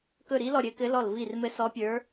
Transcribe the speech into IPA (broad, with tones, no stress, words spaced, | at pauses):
kɵ˦˨ɾi˧˥lɔ˦˨ɾʲɘ˧˥ kɘ˧˥lɔ˦˨lvi˦˨r mɘ˧˥sɔ˧˥pʲə˞˧˥